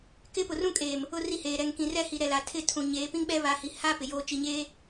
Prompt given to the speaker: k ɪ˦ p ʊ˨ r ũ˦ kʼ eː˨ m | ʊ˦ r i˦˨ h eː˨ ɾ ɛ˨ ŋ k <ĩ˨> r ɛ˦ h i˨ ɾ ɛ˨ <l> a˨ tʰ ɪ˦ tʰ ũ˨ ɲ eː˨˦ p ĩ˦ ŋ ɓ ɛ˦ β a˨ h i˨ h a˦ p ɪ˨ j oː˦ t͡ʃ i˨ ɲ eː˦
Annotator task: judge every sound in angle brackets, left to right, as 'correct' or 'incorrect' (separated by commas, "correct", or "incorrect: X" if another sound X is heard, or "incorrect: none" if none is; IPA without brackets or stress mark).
correct, correct